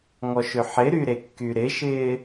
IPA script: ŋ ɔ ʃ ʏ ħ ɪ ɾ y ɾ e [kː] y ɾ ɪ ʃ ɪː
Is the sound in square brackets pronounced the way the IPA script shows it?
yes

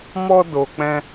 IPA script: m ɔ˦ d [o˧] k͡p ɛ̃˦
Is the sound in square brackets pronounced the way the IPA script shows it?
yes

